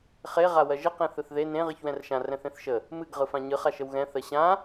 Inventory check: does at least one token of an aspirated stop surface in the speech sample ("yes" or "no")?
no